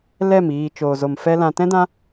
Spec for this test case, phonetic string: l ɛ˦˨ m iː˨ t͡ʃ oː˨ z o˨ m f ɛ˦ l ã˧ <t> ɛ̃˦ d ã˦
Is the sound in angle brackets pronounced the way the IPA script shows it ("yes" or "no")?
yes